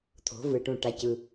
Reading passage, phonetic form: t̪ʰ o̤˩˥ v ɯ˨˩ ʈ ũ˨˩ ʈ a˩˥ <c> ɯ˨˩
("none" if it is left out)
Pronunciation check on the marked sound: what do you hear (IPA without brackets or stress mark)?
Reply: c